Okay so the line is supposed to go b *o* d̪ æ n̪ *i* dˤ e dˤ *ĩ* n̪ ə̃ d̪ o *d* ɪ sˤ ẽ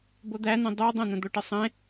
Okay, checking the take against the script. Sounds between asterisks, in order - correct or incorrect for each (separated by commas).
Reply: correct, incorrect, incorrect, incorrect